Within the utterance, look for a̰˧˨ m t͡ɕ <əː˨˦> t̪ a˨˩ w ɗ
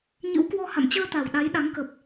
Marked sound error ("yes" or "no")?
yes